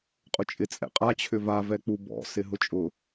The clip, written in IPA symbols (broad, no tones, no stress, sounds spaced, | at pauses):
qʼ ʊ t͡ʃʼ ɪ t͡sʼ ɛ̰ qʼ a t͡ɕʰ ʏ v a v ɛ k͡p u b ɔ̰ s ɪ ɦ ʊ t͡ʃʼ ʊ